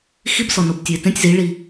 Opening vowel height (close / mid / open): close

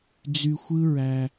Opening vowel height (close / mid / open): close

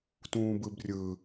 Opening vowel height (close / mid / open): close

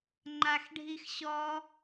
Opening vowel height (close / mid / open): open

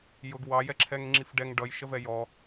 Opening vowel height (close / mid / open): close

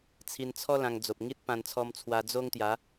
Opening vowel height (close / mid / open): close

